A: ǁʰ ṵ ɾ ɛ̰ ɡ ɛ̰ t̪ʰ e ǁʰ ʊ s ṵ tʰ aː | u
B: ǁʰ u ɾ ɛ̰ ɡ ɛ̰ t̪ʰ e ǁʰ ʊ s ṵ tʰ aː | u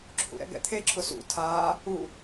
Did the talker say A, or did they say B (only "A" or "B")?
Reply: A